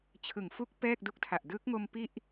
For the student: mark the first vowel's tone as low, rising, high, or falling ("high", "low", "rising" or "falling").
low